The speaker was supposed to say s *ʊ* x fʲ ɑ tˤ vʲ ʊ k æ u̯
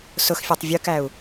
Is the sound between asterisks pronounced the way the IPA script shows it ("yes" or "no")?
yes